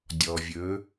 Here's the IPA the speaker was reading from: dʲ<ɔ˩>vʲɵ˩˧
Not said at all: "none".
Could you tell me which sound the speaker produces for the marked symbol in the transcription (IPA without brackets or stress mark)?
ɔ˩